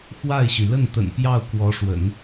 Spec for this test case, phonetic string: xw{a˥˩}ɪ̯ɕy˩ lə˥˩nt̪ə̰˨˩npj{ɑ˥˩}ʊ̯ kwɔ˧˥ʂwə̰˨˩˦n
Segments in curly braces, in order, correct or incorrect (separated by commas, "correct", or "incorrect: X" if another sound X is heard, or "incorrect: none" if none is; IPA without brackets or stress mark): correct, correct